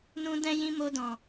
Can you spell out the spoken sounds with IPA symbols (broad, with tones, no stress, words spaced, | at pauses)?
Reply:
nũ˦dɛ̃˦jĩ˦ mo˧dɔ̃˨